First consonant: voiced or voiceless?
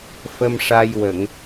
voiceless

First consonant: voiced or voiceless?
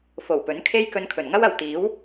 voiceless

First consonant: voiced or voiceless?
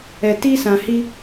voiceless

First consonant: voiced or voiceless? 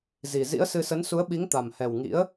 voiced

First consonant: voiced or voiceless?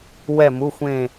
voiced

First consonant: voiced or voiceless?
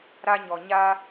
voiced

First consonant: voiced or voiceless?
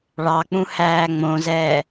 voiced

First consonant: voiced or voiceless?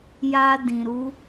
voiced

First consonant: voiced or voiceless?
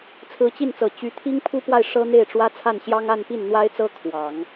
voiceless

